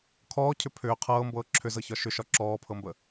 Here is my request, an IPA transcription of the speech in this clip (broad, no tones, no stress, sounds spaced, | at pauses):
kʰ ɔː cʰ ʏ pʰ ʏː qʰ ɤː m b ɤː ǁʰ ʏ z ɤ ç ɒ ʃ ʏ ʃ ɒ ǁ ɔː pʰ ɤ m b ə